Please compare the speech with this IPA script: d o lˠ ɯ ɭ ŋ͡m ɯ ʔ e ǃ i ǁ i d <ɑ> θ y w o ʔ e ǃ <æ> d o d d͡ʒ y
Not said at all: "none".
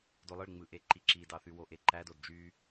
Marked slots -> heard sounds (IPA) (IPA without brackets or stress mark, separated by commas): ɑ, æ